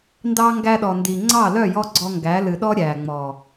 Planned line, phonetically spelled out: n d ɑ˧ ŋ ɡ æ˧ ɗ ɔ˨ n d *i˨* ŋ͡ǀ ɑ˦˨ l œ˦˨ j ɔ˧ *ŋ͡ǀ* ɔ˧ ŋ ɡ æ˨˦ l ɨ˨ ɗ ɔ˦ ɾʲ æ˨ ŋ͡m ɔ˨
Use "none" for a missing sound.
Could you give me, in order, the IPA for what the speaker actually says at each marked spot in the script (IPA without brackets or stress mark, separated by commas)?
i˨, ɡ͡ǀ